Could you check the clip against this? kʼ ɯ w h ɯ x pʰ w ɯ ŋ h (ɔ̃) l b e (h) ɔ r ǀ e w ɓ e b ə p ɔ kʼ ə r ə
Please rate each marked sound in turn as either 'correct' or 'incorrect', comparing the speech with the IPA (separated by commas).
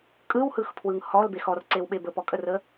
incorrect, incorrect